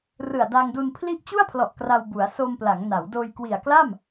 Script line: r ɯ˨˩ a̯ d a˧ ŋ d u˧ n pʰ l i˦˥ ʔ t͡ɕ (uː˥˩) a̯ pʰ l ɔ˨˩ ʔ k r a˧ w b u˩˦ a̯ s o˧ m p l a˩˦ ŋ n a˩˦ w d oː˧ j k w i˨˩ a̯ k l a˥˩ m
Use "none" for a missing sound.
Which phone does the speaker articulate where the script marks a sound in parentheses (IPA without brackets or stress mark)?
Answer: u˥˩